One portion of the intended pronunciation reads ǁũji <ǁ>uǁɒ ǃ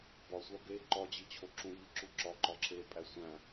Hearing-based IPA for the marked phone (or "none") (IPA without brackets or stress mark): ǁ